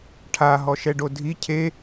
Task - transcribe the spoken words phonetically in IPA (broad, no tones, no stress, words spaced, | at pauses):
ʈʰaɦɔ ʃɛɖodʱi cʰe